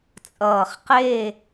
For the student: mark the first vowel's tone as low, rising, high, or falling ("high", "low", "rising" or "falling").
low